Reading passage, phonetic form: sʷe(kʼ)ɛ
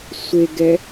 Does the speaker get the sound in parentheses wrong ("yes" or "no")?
yes